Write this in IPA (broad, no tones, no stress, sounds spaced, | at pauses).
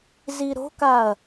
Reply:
z i ɾ o̤ k a ɐ̯